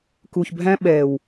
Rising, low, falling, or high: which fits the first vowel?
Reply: low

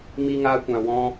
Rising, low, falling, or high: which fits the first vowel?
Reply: high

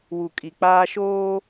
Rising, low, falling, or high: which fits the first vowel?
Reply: low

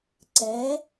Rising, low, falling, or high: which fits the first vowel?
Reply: rising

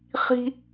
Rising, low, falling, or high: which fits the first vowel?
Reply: high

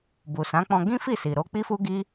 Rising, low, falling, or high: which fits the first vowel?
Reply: low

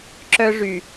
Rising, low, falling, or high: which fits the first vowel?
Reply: high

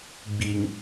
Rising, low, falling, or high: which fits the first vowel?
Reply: low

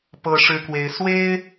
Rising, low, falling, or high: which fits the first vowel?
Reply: high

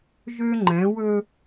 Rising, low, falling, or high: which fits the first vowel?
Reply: high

